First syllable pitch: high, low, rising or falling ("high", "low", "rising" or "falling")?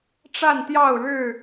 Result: falling